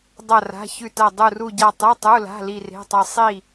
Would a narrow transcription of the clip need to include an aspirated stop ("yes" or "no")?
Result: no